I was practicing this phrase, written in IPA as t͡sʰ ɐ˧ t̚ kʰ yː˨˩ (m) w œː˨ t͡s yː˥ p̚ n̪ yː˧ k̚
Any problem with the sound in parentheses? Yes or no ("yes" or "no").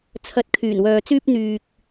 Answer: yes